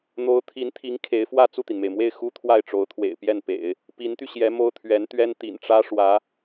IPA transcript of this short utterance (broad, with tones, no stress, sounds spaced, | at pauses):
n̪ o˧˥ ʊ̯ t̪ʰ i˧˥ n t̪ʰ i˧˥ ŋ kʰ e˧˥ ɪ̯ f w ä˥˧ t͡s u˥˩ t̪ i˩ n m e˩ ɪ̯ m w e˥˩ ɪ̯ x u˥ t̪ʰ w a˥˩ ɪ̯ ʈ͡ʂ o˧˥ ʊ̯ t̪ʰ w ḛ˨˩ ɪ̯ p j ɛ˥˩ n p ḛ˨˩˦ ɪ̯ | p i˧˥ n t̪ y˧ ɕ j ɛ˧˥ m o˥ ʊ̯ t̪ʰ ɥ ɛ˧˥ n t̪ ɥ ɛ˥ n t̪ ḭ˨˩ n ʈ͡ʂ ä˥ ʂ w ä˧˥